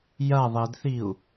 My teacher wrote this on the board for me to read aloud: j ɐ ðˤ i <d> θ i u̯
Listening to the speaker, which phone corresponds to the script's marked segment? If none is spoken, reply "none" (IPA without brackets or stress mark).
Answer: d